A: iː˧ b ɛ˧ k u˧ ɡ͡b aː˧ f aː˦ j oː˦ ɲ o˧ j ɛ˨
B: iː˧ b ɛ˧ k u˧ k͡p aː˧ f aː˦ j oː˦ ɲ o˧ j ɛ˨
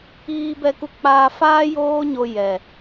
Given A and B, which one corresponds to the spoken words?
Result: B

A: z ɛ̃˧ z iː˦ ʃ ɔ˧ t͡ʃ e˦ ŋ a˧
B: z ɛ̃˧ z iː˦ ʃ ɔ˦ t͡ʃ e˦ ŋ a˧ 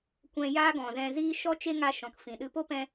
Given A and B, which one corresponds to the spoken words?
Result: B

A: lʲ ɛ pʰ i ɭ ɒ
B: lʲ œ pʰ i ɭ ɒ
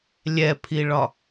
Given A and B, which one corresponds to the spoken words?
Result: A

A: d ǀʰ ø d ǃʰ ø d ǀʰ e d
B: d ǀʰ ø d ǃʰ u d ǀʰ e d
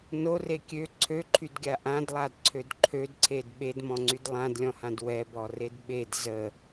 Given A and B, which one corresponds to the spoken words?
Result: A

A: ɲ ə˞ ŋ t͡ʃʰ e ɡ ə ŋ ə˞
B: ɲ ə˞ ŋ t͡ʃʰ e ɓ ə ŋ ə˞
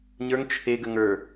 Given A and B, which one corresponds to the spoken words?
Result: A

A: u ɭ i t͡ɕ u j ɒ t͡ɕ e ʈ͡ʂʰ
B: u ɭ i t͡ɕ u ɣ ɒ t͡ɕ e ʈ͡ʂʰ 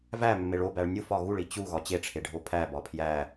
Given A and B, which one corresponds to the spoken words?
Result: B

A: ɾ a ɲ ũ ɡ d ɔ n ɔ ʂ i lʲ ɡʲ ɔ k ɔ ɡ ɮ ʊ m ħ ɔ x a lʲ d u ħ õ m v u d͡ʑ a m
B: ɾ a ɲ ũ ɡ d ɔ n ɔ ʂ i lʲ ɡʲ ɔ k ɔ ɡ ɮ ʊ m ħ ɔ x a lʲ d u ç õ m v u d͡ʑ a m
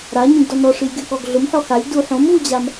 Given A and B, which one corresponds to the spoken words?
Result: A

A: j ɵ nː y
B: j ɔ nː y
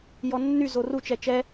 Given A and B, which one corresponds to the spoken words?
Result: B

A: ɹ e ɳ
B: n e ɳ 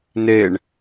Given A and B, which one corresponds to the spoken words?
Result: B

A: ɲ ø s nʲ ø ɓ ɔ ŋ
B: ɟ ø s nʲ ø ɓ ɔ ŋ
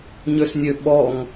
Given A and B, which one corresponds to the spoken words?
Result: A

